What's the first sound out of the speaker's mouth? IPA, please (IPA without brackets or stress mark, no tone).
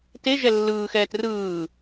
t